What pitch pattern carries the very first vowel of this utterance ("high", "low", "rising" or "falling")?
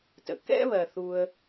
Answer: low